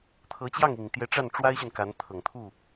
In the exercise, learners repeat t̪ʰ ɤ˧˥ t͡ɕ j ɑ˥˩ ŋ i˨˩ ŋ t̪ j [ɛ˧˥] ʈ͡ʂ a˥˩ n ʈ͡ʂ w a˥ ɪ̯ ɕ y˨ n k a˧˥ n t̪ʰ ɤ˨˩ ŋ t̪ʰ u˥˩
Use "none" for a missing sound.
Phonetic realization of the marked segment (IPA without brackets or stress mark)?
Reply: ɛ˧˥